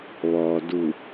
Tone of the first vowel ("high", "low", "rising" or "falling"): low